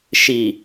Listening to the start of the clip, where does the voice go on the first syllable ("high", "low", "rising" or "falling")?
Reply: low